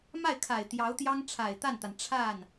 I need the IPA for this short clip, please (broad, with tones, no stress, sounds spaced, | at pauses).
m a˥˩ ɪ̯ kʰ a˨˩ ɪ̯ t̪ j ɑ˧˥ ʊ̯ t̪ j ɑ˥ ŋ ʈ͡ʂʰ a˨˩ ɪ̯ t̪ a˥˩ n t̪ a˩ n ʈ͡ʂʰ a˥˩ n